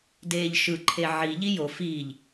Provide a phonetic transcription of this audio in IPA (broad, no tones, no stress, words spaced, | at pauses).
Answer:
deːʎʃɯ ǃʰeʕi ʎijo fiːʎ